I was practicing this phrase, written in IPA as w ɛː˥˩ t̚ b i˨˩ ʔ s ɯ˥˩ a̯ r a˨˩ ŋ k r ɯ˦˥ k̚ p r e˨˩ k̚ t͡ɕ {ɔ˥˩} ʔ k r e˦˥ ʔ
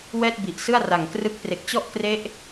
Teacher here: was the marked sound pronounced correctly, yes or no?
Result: yes